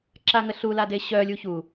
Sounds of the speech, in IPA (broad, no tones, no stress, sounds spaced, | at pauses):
ǁ a ŋ ə ɬ u l a d e ɕ œ lʲ u ç u